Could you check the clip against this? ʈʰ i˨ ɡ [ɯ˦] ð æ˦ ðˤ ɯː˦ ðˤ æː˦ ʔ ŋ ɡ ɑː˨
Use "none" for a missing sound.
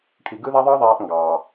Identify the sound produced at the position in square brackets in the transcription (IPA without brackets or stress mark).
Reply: ɯ˦